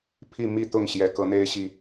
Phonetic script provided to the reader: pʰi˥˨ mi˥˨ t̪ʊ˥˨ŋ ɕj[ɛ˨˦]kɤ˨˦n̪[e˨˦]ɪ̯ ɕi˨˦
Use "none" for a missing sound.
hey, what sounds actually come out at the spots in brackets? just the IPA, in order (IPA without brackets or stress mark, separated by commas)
ɛ˨˩, e˦